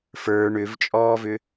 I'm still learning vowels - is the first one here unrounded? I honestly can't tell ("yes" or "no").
yes